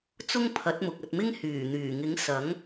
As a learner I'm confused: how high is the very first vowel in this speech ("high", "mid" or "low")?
high